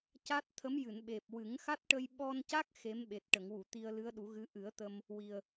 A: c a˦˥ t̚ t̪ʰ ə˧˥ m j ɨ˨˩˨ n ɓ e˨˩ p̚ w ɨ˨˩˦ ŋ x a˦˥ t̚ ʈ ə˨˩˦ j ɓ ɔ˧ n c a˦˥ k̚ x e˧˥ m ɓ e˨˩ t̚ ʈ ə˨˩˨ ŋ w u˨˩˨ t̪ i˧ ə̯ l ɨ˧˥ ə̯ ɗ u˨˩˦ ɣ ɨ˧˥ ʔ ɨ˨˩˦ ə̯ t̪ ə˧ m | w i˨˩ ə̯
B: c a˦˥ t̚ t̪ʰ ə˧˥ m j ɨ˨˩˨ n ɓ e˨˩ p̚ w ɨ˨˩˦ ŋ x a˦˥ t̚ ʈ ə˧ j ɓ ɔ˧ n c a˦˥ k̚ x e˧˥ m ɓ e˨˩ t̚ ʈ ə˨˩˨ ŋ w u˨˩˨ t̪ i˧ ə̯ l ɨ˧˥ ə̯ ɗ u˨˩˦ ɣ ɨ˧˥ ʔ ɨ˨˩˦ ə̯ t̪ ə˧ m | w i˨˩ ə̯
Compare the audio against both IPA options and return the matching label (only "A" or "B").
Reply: B